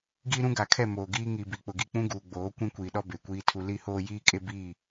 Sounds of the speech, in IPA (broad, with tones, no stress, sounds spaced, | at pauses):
ɡ iː˦ ɾ ũ˦ ɡ a˨ kʰ ɛ˦˨ m oː˨ ɡ iː˦ ŋ i˨ b i˨ k͡p ʊ˨ ɡ i˦˨ k͡p ũ˦ ɡ uː˨ ɡ͡b oː˨˦ kʷ ĩ˦ kʷ iː˨ ɗ ɔ˦ b e˨ kʷ iː˦ tʰ u˦ l i˦ h oː˦ j iː˦ kʼ e˦ b i˦˨